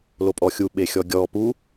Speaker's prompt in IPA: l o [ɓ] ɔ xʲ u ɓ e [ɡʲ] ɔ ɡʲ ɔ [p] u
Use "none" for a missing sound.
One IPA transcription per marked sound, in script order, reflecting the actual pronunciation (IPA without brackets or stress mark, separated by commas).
pʼ, xʲ, p